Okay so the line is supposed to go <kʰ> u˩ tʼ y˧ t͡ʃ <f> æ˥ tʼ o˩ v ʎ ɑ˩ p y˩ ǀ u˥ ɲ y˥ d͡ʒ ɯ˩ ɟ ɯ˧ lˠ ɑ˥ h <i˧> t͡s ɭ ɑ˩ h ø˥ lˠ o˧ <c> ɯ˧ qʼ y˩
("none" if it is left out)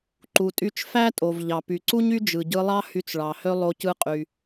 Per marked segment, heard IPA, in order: ǃ, f, y˧, c

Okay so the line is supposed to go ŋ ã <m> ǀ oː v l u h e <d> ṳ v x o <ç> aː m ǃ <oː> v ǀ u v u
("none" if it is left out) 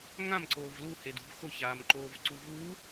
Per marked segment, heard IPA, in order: m, d, ç, oː

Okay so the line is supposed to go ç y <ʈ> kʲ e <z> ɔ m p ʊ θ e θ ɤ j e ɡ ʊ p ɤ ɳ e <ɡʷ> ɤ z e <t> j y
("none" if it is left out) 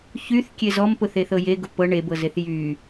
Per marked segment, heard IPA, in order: θ, z, b, θ

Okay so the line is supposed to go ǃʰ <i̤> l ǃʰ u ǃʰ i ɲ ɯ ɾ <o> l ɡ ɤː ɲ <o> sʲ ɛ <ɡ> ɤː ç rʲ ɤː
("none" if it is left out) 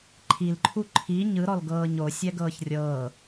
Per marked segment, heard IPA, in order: i, ɔ, o, ɡ

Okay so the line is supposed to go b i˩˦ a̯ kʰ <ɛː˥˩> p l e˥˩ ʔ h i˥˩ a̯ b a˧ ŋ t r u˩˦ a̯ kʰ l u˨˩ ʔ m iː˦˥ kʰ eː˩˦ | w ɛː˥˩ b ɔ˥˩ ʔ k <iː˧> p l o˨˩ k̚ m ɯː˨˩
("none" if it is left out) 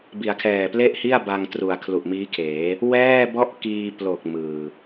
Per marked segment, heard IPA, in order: ɛː˨˩, iː˧

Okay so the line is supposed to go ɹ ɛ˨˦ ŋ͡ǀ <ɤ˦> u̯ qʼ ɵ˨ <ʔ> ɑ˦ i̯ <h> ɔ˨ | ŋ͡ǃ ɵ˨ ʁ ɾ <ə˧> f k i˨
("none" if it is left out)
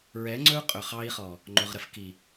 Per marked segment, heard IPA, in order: ɵ˦, χ, χ, ə˧

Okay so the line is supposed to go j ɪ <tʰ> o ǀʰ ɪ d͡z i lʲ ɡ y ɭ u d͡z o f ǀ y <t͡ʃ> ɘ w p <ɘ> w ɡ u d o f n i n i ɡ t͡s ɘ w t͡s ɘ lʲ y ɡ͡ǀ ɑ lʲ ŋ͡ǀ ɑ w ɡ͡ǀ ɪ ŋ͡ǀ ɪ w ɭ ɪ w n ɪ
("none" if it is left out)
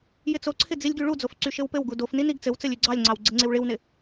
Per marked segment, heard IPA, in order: t͡s, ʃ, ɘ

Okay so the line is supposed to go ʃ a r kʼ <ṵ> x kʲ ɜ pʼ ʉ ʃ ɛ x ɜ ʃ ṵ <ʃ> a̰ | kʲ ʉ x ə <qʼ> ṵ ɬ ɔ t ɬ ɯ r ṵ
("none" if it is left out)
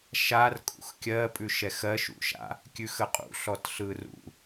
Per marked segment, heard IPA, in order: ṵ, ʃ, qʼ

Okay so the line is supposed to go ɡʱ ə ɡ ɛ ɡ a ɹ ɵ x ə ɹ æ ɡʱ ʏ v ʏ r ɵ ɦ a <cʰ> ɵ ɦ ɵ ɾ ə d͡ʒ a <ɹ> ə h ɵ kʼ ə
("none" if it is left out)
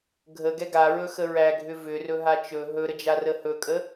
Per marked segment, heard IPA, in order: t͡ʃ, r

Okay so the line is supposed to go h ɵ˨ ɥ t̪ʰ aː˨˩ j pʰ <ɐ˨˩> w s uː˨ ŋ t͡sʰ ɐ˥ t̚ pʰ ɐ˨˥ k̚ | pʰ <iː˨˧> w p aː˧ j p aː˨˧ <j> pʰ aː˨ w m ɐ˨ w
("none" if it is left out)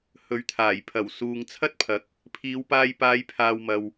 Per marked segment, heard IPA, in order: ɐ˨˩, iː˨˧, j

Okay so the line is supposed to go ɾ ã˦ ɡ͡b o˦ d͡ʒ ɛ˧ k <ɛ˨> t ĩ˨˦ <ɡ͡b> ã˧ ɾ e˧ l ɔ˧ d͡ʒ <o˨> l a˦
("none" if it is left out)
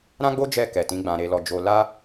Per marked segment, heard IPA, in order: ɛ˨, ɡ͡b, o˧

